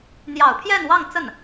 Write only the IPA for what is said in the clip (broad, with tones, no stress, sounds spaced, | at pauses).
n̪ j ɑ˨˩ ʊ̯ pʰ j ɛ˥˧ n w ɑ˥˧ ŋ t͡s ə˥˩ n